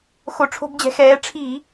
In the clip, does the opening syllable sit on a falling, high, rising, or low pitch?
low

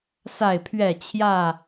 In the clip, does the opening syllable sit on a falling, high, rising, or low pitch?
falling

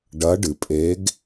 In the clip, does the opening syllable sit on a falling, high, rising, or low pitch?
rising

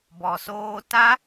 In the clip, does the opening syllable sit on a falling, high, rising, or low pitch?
low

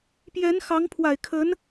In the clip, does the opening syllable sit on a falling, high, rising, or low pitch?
rising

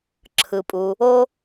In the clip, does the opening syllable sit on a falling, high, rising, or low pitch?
low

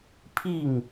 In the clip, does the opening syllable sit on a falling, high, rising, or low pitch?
falling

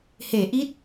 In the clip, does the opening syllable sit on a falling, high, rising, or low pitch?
low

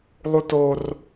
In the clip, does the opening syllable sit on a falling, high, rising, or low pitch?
high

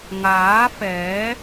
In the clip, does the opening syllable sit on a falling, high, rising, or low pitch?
rising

